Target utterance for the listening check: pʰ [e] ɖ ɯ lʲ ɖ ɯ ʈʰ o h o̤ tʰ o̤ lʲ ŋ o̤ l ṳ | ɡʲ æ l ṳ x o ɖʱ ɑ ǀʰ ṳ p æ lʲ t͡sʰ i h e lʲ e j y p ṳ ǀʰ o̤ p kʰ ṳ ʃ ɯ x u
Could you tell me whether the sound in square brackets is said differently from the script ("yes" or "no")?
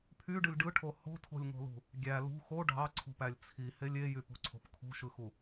yes